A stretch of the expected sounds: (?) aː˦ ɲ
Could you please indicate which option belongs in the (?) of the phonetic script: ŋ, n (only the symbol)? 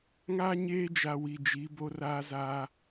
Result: ŋ